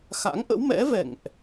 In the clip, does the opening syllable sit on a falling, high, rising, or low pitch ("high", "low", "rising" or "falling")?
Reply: rising